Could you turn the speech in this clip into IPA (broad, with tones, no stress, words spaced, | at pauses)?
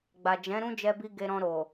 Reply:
ɡ͡ba˨d͡ʒɛ̃˨˦ ɾũ˦d͡ʒɛ˧bi˧ ɡe˧ɾɔ̃˧ ɾo˨